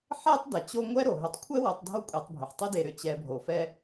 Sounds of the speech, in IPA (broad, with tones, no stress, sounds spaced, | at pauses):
ħ ɛ˥ tˤ d ɛ˩ t͡ɕ o˦ ŋʷ ɛ˥ ɾ o˩ ɦ ʏ˨ tˤ kʷʰ ɛ˥ w o˨ tˤ dʱ o˦ kʷʼ e˨ tˤ bʱ ʏ˩ ħ tˤ e˥ d e˨ ɾ ʏ˨ t͡ɕ ɛ˨ bʱ o˩ f ɛ˦